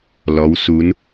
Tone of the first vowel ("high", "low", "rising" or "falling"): rising